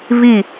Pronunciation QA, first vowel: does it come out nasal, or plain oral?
oral